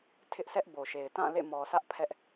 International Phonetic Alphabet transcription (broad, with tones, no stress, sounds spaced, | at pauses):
tʰ ɪ˦ ʔ sʰ ɛ˦ ʔ b o˨ ʃ e˨ ɪ̯ t ã˦˨ l ḛ˦˨ m ɔ˨ sʰ ä˦ ʔ pʰ ɛ˦ ʔ